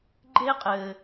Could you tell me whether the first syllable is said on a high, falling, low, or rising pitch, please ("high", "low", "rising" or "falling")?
high